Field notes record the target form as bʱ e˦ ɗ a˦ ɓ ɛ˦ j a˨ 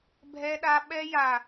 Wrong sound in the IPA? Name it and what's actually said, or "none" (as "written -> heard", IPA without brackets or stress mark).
e˦ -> ɛ˦